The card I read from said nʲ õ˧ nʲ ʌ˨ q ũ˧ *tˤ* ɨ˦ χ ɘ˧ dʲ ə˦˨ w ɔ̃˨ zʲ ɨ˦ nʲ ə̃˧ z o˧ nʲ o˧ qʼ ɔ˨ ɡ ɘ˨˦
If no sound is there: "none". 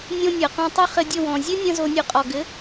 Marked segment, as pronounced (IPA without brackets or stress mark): tˤ